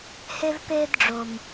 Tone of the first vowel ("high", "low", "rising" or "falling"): high